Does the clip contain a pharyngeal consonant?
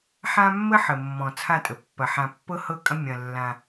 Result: yes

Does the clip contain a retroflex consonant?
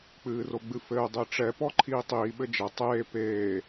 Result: yes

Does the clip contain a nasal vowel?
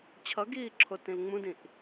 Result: yes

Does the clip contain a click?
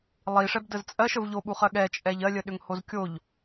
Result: no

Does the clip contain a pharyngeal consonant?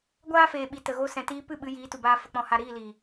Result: no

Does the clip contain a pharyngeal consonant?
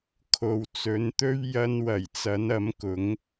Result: no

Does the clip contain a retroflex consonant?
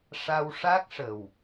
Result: yes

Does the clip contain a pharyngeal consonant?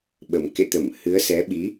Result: no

